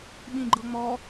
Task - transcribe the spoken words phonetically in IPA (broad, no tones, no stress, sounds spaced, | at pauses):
ɓ ĩ ɡ͡ǃ ɤ ŋ͡m ɔ